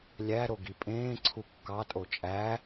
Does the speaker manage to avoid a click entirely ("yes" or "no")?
no